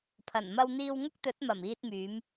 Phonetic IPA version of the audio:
pʰ ɐ˨˩ n m ɐ˧ w n̪ iː˧ w ŋ ʊ˥ k̚ t̪ ɵ˨˥ t̚ m ɐ˨˩ m iː˧ t̚ m yː˨˧ m

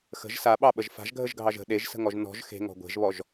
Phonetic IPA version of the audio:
x ə̤ ʒ s a ɓ ɑ ɓ ə ʒ f a̤ ʒ ɡʱ ə ʒ ɡʱ ɑ ʒ ə̤ ɗ e ʒ s ə̤ ŋ ɔ ʒ n ɔ̤ ʒ x e̤ ŋ ɔ̤ ɡʷ e̤ ʒ β ɔ ʒ

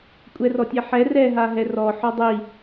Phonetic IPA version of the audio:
kʷʼ ɛ r ɔ tʲ ɛ ħ ɛ r ɛ ɦ a ɦ ɛ r ɔ ħ ɔ dˤ i

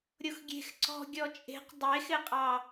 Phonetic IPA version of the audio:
ɾʲ o x ɡʲ e̤ x ǀ ɔ̤ ɡʲ ɔ t͡ʃʼ e̤ q dˤ e x ɪ qʼ ɑ

